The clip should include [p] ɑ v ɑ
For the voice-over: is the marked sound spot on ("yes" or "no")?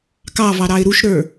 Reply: no